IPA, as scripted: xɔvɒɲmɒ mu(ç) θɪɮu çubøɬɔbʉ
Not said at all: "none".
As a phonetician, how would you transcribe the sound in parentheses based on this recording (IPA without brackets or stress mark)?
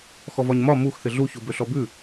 x